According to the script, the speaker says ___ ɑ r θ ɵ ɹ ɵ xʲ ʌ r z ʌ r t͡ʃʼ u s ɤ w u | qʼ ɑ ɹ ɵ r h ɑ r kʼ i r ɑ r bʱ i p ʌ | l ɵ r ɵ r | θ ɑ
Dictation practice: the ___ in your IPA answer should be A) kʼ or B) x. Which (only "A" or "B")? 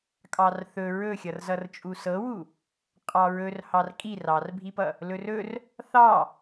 A